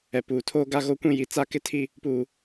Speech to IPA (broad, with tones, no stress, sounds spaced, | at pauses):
ɛ˨ p uː˨ tʰ oː˦ ɡ a˦ ɣ o˦ kʷ ĩ˦ j i˨ t͡s a˦ k ɪ˦ tʰ i˦ | p uː˦